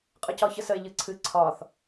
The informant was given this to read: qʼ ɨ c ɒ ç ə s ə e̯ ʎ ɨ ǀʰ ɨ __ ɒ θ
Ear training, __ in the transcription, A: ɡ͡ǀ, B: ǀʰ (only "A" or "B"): B